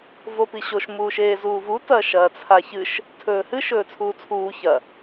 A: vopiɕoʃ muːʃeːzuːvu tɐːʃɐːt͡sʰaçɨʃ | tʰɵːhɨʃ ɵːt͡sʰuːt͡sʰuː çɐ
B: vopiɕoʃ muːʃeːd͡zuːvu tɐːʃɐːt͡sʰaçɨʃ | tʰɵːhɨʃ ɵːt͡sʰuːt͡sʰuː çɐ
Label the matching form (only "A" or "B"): A